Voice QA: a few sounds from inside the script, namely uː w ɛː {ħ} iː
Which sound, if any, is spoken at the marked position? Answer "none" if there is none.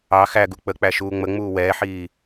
ħ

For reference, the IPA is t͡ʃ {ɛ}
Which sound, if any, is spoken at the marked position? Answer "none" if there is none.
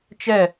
ɛ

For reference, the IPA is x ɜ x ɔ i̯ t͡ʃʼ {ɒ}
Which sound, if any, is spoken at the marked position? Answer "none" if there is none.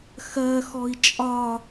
ɒ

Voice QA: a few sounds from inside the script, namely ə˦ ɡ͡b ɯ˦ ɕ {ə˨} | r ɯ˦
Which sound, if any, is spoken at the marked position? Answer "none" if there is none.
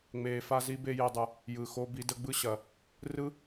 ɐ˨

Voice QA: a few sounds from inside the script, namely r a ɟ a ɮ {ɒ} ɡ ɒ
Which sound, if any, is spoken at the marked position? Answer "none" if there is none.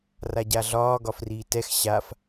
ɒː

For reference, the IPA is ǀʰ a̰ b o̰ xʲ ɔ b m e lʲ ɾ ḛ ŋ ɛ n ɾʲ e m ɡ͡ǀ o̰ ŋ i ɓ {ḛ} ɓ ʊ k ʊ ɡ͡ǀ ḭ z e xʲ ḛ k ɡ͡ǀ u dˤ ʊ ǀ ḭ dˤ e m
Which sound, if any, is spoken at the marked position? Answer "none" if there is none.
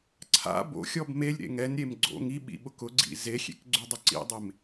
ḭ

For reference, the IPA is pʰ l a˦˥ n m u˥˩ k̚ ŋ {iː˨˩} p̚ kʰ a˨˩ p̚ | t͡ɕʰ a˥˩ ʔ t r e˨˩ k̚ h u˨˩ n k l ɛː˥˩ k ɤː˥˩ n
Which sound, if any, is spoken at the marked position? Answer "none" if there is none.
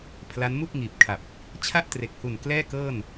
iː˨˩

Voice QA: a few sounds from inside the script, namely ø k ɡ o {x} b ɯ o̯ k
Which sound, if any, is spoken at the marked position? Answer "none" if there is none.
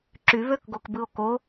k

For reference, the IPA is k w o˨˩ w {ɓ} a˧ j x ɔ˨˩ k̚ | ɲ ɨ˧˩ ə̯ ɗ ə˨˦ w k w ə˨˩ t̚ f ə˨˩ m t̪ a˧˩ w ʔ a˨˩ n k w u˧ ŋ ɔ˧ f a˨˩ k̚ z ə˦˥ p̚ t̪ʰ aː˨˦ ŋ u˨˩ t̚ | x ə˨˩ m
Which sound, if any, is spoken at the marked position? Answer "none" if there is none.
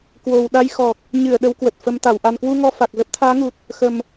ɗ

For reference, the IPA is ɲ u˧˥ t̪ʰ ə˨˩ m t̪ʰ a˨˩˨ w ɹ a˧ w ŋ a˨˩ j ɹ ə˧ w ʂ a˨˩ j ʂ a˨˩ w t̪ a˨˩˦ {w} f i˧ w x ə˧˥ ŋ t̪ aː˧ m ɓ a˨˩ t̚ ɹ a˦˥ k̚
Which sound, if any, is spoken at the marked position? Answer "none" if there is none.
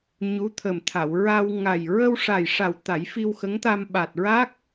j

